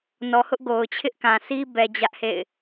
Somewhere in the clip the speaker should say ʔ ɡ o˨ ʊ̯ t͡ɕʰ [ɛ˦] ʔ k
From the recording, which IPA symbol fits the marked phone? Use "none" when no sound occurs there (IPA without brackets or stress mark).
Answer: ɪ˦